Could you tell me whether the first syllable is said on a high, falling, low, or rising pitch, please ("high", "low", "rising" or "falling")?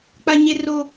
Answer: high